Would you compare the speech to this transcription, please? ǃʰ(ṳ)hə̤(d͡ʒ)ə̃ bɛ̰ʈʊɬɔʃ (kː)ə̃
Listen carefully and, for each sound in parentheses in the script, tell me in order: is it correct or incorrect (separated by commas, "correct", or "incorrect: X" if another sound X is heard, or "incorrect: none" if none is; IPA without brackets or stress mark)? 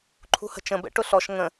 correct, incorrect: t͡ʃ, incorrect: ŋ